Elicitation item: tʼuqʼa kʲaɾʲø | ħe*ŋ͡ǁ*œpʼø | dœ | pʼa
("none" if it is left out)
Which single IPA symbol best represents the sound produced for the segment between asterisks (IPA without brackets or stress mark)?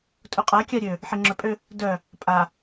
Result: ŋ͡ǁ